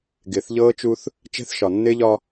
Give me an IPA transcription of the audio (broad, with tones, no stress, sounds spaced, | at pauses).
ɡ ɪː˨ θ ʎ ɤː˦ t͡ʃ u˦ θ | t͡ʃ ɛ̤˦ θ ʃ ɒ˨ nː ɪː˦ ʎ ɒ˦